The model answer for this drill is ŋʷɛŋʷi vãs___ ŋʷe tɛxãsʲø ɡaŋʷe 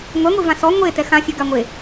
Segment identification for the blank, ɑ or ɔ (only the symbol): ɔ